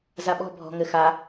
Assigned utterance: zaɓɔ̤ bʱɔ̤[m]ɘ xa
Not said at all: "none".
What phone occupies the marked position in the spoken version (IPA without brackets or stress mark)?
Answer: ŋ